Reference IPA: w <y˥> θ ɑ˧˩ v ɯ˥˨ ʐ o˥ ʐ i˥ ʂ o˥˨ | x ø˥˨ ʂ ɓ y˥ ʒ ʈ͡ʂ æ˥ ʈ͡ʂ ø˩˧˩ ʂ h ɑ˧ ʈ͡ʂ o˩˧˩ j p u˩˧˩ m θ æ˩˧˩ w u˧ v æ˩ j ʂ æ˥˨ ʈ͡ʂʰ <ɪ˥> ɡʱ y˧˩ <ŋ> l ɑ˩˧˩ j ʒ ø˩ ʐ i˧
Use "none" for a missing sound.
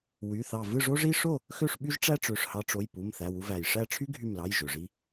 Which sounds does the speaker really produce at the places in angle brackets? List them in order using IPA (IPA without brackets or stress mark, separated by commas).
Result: y˩˧˩, y˥, m